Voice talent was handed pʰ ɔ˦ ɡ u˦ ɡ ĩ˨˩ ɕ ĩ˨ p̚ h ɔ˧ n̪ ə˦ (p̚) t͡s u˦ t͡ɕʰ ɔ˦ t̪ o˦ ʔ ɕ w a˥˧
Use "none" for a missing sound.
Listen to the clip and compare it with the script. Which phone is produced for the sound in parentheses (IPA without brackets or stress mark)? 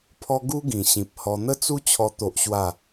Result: none